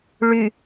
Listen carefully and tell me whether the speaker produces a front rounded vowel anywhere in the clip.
yes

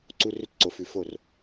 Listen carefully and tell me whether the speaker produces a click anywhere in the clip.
yes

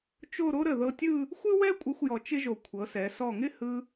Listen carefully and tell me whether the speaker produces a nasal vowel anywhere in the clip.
no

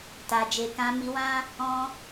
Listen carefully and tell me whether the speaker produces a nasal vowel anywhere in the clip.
yes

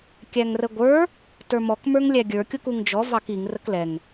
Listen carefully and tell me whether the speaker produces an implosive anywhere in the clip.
no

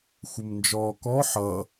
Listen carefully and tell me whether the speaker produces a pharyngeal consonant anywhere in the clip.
yes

